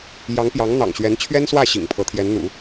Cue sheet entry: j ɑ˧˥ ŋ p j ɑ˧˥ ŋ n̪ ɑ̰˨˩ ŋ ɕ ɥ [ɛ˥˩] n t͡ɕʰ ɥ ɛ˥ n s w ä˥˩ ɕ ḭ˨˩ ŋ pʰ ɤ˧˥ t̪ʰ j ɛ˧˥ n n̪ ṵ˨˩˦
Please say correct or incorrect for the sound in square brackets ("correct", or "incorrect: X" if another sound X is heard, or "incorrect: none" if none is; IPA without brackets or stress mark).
incorrect: ɛ˧˥